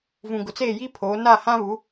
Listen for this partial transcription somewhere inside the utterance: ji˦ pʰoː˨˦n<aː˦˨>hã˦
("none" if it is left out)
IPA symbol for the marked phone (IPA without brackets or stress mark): aː˦˨